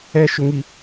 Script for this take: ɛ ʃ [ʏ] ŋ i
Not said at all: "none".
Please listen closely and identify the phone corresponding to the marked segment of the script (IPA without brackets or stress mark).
ʏ